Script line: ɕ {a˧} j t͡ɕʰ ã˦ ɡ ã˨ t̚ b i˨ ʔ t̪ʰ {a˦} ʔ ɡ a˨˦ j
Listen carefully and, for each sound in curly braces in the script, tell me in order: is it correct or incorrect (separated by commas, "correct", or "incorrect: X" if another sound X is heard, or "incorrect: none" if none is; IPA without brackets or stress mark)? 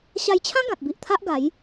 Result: correct, correct